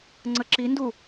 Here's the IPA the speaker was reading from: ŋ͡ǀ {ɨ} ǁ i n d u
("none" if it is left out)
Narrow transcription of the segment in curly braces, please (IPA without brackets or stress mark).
ə